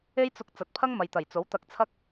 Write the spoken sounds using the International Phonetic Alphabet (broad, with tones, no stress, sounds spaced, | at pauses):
e˥ j t͡s ʊ˧ k̚ t͡s ɐ˨˥ t̚ pʰ ɐ˥ ŋ m ɐ˨ j t̪ ɐ˨˩ j t͡s o˨˥ w t̪ ɐ˧ k̚ t͡sʰ ɐ˥ k̚